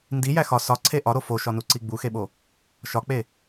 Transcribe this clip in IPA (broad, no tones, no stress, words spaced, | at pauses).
ndijæ xɒ sɒǀʰe ʔɒɾo foʃɒnuǀi ɡ͡buxeɓo | ʃɒk͡pe